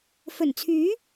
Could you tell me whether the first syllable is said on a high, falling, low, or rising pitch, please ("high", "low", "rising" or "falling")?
low